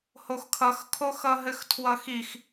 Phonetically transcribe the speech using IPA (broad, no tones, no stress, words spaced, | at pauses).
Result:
hoxkʰʌxkʰo xʌɦɘxtʰwʌxix